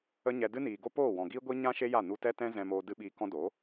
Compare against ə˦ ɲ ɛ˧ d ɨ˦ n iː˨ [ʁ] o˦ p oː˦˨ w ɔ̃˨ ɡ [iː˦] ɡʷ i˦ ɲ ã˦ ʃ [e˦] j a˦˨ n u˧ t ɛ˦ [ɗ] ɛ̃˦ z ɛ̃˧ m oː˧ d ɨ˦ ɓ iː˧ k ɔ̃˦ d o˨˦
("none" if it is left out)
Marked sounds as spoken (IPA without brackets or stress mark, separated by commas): ɡ, iː˦, e˦, t